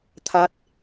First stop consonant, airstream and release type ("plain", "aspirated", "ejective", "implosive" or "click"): aspirated